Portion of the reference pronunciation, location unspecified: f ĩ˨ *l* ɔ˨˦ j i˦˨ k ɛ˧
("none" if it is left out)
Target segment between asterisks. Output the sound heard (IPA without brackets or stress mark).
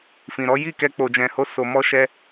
ɾ